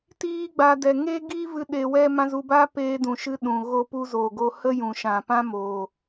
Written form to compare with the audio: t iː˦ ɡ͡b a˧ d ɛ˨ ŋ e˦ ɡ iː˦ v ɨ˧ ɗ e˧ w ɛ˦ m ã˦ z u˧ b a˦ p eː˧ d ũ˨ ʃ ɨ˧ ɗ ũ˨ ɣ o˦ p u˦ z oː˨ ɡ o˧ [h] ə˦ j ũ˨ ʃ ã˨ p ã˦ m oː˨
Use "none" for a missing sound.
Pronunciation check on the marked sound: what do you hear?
h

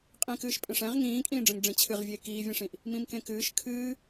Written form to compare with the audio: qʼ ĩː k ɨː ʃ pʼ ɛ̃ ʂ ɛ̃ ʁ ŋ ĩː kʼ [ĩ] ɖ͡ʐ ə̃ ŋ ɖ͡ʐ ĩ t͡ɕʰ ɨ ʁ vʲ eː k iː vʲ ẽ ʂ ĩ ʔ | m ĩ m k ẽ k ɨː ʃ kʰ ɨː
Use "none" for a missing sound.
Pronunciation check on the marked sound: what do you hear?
ĩː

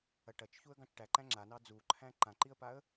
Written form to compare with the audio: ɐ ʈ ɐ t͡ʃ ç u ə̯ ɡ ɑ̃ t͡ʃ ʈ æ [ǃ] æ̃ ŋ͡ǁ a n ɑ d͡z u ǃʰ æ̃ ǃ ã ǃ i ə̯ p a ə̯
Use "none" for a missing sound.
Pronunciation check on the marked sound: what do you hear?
ǃ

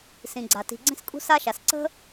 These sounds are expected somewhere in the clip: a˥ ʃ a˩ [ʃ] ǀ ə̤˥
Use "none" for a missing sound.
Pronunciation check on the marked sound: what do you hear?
s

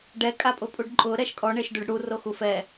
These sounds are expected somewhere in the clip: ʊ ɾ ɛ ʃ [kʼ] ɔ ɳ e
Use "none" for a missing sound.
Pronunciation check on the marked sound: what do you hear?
kʼ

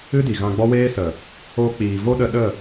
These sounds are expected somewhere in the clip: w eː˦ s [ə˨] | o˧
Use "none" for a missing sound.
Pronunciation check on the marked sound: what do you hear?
ə˨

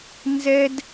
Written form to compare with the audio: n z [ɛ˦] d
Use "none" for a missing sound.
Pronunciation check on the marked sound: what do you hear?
ɛ˦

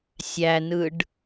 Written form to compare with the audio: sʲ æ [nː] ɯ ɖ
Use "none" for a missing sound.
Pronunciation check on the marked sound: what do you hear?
n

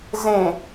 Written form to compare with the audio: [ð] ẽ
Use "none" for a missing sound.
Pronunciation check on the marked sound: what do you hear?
z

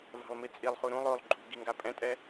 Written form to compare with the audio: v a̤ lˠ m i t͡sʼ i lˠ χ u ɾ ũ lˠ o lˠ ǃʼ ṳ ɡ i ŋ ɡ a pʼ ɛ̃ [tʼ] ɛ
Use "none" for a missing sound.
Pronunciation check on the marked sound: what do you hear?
tʼ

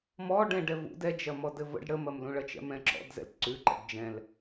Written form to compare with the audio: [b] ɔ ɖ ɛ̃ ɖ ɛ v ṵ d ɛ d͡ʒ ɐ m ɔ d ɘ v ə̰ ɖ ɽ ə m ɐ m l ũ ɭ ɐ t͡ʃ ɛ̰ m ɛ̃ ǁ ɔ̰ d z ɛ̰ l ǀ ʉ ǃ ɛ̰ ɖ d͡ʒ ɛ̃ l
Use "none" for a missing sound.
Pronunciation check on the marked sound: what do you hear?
m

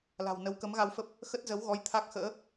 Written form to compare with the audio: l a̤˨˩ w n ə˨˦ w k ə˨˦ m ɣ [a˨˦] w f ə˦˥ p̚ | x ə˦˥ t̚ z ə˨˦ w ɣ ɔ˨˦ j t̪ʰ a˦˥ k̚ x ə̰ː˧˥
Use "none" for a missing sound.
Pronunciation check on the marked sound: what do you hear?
a˧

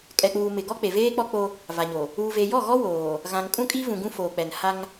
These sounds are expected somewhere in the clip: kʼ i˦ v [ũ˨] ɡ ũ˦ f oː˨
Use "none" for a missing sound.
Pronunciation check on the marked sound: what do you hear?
ũ˨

